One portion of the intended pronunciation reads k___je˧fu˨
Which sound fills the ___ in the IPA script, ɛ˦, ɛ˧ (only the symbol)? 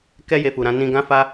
ɛ˦